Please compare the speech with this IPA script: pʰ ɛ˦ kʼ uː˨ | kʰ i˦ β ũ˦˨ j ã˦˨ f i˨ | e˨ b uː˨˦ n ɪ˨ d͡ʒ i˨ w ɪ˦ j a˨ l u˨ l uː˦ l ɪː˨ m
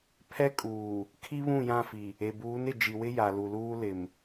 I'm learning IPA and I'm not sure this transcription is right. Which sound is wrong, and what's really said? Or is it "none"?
ɪː˨ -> ɪ˨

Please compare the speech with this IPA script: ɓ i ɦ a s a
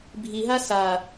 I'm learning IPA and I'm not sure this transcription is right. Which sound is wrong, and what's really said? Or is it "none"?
ɓ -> bʱ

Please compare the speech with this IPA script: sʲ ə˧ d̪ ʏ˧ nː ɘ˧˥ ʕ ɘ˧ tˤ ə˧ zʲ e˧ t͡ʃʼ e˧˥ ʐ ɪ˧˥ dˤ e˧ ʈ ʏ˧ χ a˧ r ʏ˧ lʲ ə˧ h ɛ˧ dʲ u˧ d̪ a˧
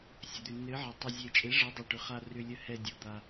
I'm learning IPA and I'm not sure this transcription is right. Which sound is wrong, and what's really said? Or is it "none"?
none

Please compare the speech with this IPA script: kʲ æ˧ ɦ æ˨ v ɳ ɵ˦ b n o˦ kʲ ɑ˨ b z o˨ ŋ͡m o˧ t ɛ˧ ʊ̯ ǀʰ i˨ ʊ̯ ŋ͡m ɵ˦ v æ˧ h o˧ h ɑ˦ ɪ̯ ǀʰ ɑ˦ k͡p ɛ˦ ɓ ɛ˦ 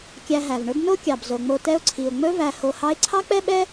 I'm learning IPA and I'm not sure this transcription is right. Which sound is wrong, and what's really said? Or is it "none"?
none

